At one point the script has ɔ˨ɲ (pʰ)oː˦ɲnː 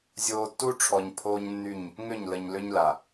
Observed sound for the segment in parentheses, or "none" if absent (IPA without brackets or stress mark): pʰ